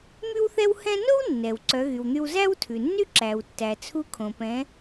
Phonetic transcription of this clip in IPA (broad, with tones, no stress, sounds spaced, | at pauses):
m y˥ w θ ɛ˥ w h ɛ̃˥ n o˥ w nː ɛ˩ w ǀ œ˩˧ ɣ y˩ w n̪ y˧ w z æ˥ w tʰ ʉ˩ nː y˥ ǁ æ˩ w tː æ˩ t͡sʰ u˧˥ kʰ õ˩ p ɛ̃˩˧